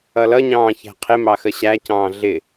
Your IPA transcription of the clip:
ʌlʌɲɑ̃ː çæ̤qʰɪmɑ xəɕæcɑ̃ː ɮɪ

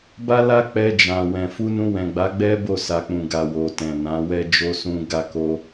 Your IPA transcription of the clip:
ba˦la˦ k͡pɛ˧d͡ʒã˨wɛ̃˨ fu˧nũ˧wɛ̃˨ɡ͡ba˨˦ ɡ͡bɛ˦bo˦˨sa˨k͡pũ˨ ɡa˨wo˨tɛ̃˨ nã˨˦wɛ˦ d͡ʒo˧sũ˧ ɡa˧ko˧

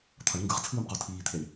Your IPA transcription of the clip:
t̪ʰʌɳ ŋɡɯʁt͡sʰɯːmqo tʰiːt̪ʰeɳ

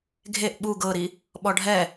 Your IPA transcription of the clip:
ɡʱeʔ ɓu ɡɤɾi | ɓɔɖʱɛ

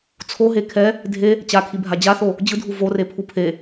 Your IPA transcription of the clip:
t͡sʰoɦe kʰɛ | dʱe | t͡ɕakʰibʱa d͡ʑaθo | d͡ʑɯdʱu vorepʰu pʰe

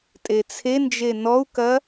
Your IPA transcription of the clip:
tʼet͡sʰend͡ʒe nɔu̯kɐ

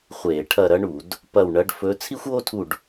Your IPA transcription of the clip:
χʷeː˧˩˧ ʈʰɐ˦˨ɾɐ˥ɳu˧˩˧d | pɐ˦˨wɳɐ˧˥ɖ fɵ˧˥ t͡sʰi˥xʷoː˥tʰu˦˨ɖ

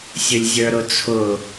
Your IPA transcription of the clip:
sʲʊlʲzʲə˞ɾʊt͡sʰʊ

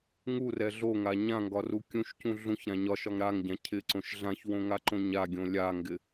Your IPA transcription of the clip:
ŋurɛ ɮoŋa ɲãŋɡɒru kʲũʃcũ ɮũçɾã ɲɒʃɒŋ ɾaŋɟã cʰɪǀõʃ ɮãçwõŋaǃõ ɲaɡʲõ lʲaŋɡɪ

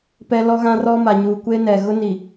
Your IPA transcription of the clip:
pɛ˦ lɔ˦ɣã˦rɔ˦ ma˨ɲuː˨kʷeː˦nɛ˨ ɣʊ˦ni˨

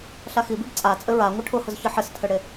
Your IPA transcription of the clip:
ɬaxibib t͡sʼa t͡sʼɘɹa ŋʷɘʈʰʊhʊz çɘħɘstʰɘɽe

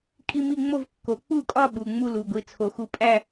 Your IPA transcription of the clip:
kʼi˥˧mi˥˧ŋ͡mo˥˧vkːo˨˩˦ k͡pu˥˩kʼɒ˥˧ ɓu˩˧˩ ŋ͡mu˥˧lu˩˧˩ɡʷi˩˧˩ t͡sʰo˨˩˦xu˨˥ pʼæ˥˧

